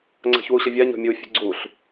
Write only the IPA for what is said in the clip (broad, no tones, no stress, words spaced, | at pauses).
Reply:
ŋ͡ǀa̤çwuɕəvʲa ɲɔ̤mʲu fʲṳɡ͡ǀuɬ